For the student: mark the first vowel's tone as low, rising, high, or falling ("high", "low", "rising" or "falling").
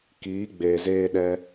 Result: rising